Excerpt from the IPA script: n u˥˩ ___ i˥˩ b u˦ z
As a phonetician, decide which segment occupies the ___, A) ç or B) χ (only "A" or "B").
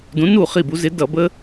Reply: B